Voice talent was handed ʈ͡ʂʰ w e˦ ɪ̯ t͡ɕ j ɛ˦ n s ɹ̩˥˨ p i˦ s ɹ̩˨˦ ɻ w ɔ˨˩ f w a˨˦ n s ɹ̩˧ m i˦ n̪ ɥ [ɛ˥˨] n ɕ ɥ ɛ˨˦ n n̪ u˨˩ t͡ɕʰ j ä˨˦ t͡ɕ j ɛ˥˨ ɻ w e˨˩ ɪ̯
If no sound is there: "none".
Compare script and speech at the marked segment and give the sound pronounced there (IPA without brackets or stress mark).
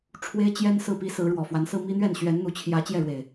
ɛ˥˨